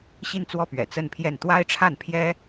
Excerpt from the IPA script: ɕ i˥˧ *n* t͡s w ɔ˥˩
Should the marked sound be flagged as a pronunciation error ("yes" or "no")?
no